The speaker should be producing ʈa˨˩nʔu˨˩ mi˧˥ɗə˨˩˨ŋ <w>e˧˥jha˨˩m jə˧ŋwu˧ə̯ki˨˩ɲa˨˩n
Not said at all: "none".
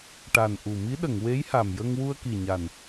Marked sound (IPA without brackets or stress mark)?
w